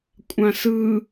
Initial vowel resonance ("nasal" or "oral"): nasal